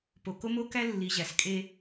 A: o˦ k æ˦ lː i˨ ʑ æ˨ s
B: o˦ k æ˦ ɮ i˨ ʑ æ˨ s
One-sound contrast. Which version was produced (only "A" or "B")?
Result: A